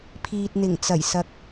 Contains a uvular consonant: no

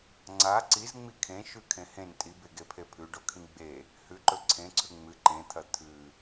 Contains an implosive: no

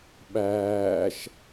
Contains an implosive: yes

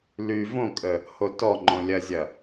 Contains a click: yes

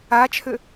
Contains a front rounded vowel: yes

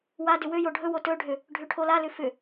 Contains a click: no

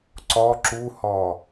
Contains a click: yes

